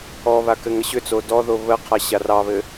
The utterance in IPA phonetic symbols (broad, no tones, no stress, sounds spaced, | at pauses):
ɔ β a k ɘ ŋ ə ɕ ʏ t͡s o d ɔ ð o β ə qʰ a ɕ a r ɑ β ɘ